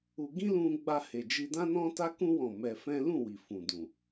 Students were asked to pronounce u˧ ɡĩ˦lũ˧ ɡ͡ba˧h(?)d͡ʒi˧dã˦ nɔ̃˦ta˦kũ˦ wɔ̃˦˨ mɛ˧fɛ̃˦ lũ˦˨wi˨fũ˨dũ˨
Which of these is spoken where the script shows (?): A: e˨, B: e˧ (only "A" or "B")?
A